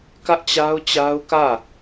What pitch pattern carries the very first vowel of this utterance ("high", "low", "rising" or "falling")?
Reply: high